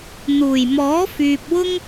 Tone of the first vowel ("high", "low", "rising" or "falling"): low